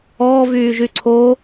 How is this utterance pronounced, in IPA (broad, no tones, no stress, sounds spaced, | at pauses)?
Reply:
ɔː v yː ʒ y ǀʰ o